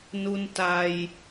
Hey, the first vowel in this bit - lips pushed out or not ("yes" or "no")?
yes